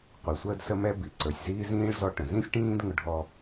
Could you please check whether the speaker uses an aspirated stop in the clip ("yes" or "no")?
no